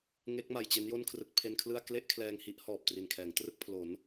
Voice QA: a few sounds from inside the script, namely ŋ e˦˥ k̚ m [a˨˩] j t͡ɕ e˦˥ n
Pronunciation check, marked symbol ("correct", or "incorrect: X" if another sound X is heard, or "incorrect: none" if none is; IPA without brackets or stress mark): correct